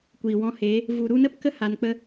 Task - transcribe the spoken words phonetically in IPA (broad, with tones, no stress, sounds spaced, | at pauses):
kʷ iː˨ w ɔ̃˧ h eː˨˦ | v u˨ ɾ u˧ n ə˦ p k ə˦ h a˨ n k͡p ə˧